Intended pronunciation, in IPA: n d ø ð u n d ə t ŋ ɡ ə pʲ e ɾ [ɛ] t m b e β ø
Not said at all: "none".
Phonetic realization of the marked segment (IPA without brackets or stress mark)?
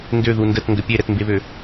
ɛ